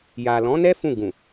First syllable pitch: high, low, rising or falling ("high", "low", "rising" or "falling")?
low